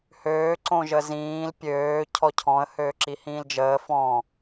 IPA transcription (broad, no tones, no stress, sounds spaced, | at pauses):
h øː ǀ õ ʒ ə z ĩː l pʲ øː cʰ ɔ cʰ ɔ̃ ə̯ h øː ǁ i h ĩː l d͡ʒ əː f ɔ̃